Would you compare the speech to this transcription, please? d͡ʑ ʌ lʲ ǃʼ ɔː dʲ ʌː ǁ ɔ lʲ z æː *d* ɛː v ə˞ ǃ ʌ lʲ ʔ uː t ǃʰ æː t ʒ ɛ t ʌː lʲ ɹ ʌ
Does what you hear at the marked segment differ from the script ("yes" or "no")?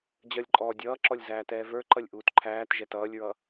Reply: yes